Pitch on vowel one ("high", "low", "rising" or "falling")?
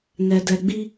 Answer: low